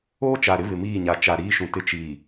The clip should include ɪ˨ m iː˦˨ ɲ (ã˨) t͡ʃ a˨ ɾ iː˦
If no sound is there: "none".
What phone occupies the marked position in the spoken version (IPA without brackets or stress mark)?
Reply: a˨